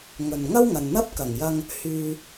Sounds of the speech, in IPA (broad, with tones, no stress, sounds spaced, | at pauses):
ŋ ɵ˨ n ŋ ɐ˥ w ŋ ɐ˨ n n̪ ɐ˥ p̚ k ɐ˨˩ ŋ j ɐ˧ ŋ | h yː˧